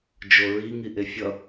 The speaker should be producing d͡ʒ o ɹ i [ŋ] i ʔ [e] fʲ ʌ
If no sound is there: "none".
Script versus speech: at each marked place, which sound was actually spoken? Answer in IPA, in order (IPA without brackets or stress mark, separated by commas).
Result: ŋ, e